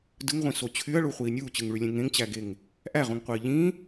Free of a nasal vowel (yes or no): no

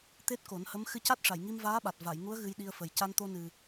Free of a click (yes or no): yes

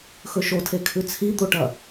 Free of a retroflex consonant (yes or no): no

